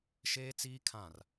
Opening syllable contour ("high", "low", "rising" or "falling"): high